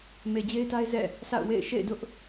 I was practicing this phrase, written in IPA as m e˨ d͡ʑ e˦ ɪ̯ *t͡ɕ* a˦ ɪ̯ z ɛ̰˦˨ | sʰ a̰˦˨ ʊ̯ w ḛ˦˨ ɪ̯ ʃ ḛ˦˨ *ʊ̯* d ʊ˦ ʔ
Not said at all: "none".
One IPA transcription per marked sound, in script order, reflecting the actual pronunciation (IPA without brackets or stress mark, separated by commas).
t, ɪ̯